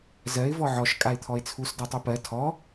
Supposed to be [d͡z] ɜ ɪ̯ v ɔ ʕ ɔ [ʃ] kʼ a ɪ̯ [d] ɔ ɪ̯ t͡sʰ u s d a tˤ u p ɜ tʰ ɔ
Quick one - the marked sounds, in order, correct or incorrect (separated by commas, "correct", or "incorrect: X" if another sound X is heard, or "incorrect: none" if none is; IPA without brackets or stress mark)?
incorrect: z, correct, incorrect: t̪ʰ